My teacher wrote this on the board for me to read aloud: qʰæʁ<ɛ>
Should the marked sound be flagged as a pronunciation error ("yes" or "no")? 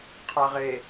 yes